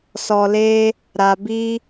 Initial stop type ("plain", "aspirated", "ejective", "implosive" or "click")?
plain